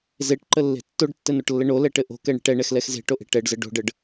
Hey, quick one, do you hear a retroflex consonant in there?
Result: yes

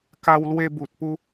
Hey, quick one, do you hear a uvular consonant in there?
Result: no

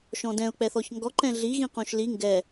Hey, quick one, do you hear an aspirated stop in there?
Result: no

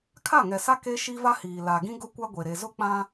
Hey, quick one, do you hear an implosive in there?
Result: no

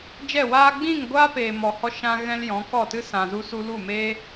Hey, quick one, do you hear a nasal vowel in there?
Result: yes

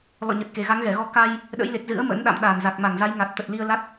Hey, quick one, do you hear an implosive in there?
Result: yes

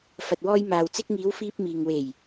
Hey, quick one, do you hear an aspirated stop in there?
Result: no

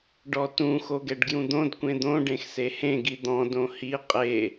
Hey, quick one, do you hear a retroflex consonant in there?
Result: yes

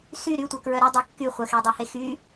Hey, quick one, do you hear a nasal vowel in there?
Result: no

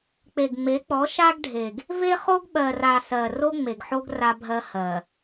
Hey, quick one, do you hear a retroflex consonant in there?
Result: yes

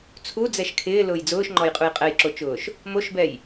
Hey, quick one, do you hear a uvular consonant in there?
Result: yes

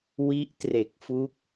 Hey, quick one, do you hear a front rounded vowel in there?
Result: no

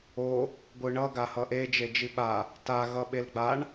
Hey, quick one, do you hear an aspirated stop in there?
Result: no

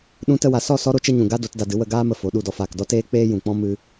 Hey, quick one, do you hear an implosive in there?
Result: yes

